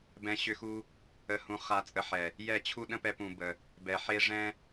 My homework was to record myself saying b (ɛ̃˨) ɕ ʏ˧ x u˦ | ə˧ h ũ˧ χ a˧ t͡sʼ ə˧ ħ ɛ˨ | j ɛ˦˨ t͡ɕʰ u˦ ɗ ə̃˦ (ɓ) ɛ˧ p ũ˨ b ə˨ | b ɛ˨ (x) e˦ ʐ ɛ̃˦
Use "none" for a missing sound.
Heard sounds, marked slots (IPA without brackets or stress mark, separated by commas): ɛ̃˧, p, ħ